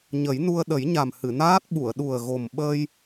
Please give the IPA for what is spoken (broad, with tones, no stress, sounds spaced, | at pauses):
ɲ ə˨˩˦ j n u˧ ə̯ ɗ ə˨˩˦ j ɲ a˨˩ m h ɨ˨˩˨ n aː˦˥ t̚ ɓ u˨˩˨ ə̯ ɗ u˨˩ ə̯ ɣ o˨˩ m ɓ əː˧ j